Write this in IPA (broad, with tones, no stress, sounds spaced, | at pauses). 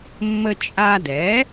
mː ə˧ t͡ʃʼ a˧ d ɛ˩˥